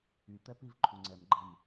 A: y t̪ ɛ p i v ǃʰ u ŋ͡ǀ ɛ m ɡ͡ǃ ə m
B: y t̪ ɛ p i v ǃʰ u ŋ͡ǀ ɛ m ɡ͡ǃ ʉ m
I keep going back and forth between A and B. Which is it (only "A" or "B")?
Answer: A